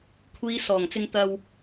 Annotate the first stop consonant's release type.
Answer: aspirated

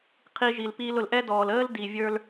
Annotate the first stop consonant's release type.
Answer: aspirated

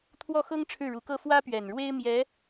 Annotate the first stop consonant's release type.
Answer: aspirated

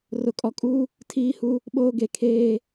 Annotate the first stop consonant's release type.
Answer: ejective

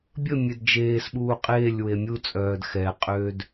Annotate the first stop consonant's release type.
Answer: plain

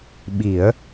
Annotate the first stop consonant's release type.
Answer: implosive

